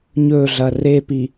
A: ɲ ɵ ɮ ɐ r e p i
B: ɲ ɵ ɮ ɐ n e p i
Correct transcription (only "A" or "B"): A